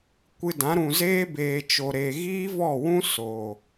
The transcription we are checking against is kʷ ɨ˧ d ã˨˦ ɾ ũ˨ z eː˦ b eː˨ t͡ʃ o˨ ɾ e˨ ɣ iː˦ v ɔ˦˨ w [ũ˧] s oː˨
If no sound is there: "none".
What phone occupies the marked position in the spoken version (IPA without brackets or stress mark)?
ũ˦